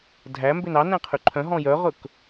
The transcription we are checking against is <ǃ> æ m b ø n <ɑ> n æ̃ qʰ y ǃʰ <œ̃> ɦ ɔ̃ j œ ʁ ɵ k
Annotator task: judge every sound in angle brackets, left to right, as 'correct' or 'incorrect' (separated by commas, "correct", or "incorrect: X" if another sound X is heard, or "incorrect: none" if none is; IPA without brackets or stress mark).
incorrect: dʱ, correct, correct